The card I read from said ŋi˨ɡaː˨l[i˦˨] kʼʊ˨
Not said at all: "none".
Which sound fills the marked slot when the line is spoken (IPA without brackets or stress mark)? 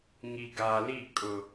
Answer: i˦˨